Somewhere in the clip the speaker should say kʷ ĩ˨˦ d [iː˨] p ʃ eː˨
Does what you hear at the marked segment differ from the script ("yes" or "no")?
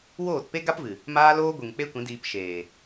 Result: yes